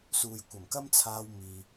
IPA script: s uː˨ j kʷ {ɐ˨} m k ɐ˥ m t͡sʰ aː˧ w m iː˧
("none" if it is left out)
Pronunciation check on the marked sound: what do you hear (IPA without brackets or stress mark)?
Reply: ɐ˨˩